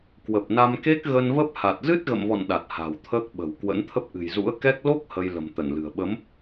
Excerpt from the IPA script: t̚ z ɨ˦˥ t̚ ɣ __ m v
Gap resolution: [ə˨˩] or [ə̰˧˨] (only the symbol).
ə̰˧˨